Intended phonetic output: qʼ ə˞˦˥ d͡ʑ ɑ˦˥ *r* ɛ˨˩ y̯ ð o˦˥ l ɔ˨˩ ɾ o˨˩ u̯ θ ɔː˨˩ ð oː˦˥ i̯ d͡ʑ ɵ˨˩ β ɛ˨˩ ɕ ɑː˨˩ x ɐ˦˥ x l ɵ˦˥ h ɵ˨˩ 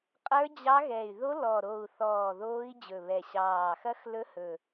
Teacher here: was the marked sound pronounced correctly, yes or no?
no